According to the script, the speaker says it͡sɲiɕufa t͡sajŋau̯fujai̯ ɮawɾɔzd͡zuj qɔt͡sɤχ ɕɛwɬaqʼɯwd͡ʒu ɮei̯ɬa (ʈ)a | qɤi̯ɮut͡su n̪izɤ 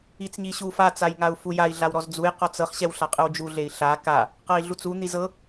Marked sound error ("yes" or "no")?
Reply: yes